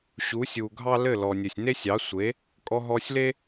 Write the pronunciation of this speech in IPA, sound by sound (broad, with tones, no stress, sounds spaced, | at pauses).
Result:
ɕ u˩˥ sʲ u˩ ɡʱ ɑ˥ l ɘ˥˩ l ɔ˩ nʲ ɘ˩ sʲ n e˥ sʲ ɑ˩˥ sʷ e˩˥ | kʼ ɔ˧ ɦ ɔ˧ sʲ l e˥